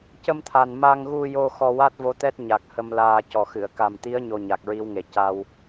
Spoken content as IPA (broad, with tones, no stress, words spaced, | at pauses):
cə˧mt̪ʰa˨˩n ma˧ŋɣu˧jo˧ xɔ˧wa˦˥t̚vo˧˥ t̪ɛ˦˥t̚ɲa˨˩k̚ hə˧mlaː˧ cɔ˨˩xɨ˨˩˨ə̯ ka˨˩mt̪i˧˥ə̯ ɲo˧ɲa˨˩k̚ɹi˧˥wŋe˨˩ ca˧w